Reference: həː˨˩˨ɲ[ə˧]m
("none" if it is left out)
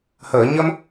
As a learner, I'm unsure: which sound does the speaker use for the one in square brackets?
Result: ə˧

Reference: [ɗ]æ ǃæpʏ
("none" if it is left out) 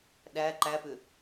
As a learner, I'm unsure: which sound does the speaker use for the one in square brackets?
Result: ɗ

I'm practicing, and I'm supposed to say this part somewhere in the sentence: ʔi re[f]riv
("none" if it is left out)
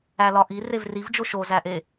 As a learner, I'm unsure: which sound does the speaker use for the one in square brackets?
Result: v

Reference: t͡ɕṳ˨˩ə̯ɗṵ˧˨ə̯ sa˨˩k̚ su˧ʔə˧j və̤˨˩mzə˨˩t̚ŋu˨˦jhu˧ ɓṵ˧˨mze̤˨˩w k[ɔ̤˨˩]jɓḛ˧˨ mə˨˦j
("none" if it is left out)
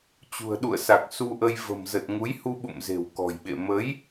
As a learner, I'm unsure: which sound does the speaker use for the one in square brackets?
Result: ɔ̤˨˩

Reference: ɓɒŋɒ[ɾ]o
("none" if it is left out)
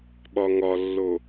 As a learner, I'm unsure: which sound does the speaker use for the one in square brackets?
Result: lː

